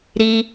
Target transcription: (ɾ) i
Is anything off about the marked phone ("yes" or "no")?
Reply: no